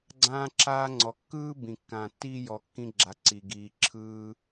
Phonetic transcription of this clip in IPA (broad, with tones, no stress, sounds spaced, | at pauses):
ɡ͡ǀ ãː˧ ǁ aː˧ ŋ͡ǀ ɔ˩ kː ɯː˥ b ĩ˩ kː ãː˩ tː iː˧ j ɔ˩ kː ĩ˧ ɡ͡ǁ a˩ ǀ i˩ ɡ iː˩ ǁʰ ɯː˧